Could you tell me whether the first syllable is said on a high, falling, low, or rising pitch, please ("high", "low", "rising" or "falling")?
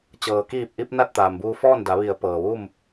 low